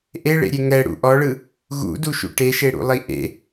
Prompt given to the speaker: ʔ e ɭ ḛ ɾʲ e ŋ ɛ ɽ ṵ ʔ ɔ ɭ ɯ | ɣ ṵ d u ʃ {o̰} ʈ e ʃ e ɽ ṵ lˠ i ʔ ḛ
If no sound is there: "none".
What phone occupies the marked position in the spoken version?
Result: ṵ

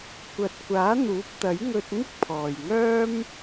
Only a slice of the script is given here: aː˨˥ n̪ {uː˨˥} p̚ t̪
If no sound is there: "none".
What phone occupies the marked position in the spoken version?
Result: uː˨˥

